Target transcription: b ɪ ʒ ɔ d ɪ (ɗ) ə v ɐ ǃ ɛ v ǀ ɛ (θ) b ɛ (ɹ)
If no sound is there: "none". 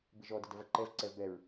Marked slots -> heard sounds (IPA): d, v, ɹ

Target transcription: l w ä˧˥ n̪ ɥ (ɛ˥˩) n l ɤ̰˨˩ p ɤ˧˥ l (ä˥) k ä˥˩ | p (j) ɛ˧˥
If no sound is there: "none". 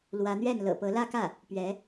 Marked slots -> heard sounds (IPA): ɛ˥˩, ä˥˧, ɥ

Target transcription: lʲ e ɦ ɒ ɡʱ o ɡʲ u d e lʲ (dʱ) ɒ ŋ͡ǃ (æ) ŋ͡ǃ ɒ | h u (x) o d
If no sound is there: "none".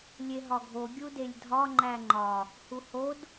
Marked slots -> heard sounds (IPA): dʱ, æ, h

